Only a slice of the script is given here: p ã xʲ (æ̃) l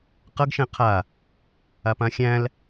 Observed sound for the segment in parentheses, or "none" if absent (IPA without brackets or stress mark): æ̃